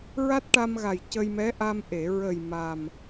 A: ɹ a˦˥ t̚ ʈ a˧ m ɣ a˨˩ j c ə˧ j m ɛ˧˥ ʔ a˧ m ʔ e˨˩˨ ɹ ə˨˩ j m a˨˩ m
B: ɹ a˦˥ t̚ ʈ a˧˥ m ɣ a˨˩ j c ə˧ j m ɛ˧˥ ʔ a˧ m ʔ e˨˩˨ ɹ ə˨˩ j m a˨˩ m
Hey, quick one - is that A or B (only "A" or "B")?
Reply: A